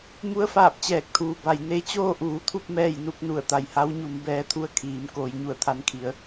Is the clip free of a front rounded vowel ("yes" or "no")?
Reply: yes